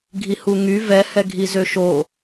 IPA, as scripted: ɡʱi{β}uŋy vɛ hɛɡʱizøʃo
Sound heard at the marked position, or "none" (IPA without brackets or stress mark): h